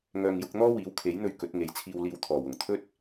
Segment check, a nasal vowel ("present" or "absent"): absent